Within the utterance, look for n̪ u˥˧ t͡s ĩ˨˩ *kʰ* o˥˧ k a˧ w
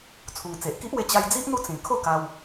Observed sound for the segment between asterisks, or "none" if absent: kʰ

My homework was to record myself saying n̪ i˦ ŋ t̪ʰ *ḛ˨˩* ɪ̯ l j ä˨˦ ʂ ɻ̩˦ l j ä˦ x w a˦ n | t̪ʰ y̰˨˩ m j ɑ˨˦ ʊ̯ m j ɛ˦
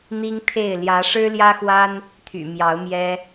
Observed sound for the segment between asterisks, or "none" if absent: e˥˨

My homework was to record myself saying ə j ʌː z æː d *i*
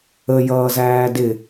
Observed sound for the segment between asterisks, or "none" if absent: ɪ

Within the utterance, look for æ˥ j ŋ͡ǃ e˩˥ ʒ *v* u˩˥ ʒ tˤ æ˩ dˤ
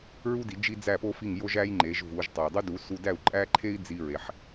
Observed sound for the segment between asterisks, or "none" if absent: v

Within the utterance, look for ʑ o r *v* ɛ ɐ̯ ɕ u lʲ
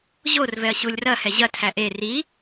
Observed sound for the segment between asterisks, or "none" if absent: v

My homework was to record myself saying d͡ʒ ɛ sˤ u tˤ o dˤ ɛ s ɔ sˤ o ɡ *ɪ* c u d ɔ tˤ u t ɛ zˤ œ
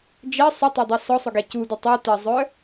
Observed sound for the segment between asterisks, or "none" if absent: ɛ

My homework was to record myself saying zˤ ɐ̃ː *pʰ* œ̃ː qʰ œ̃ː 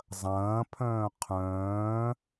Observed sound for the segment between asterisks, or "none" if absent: pʰ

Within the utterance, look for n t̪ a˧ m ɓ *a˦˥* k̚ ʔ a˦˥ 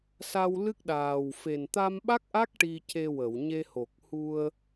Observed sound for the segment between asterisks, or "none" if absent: a˦˥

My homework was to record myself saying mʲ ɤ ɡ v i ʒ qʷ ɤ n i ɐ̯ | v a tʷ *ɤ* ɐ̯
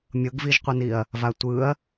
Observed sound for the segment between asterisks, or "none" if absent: ɯ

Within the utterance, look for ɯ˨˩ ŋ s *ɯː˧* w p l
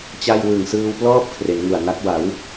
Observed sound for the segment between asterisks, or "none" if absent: ɯː˧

